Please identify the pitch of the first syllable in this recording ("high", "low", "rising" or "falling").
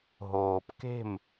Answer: low